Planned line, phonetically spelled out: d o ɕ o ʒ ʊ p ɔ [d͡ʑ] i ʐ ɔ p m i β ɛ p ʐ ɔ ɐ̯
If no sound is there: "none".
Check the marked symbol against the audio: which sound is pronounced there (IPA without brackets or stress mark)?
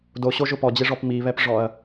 d͡ʑ